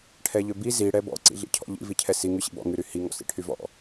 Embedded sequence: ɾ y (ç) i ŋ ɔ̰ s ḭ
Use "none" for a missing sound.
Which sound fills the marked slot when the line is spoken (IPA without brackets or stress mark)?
h